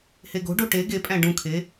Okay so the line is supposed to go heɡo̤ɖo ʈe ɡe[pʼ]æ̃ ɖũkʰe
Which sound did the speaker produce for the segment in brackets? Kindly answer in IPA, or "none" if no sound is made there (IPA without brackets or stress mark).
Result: pʼ